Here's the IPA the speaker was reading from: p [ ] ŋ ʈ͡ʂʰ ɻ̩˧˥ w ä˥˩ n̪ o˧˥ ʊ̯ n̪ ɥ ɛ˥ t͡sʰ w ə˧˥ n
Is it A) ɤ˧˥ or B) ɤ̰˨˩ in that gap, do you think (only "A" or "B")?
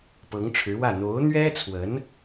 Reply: A